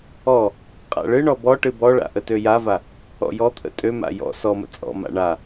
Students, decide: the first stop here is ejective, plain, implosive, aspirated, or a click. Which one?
ejective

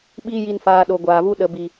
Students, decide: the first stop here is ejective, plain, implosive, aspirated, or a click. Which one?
implosive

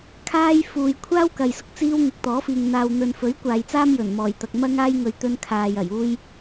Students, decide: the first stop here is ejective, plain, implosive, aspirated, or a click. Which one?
aspirated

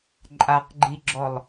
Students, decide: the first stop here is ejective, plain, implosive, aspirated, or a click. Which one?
click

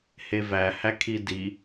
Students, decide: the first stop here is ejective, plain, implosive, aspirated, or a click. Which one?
aspirated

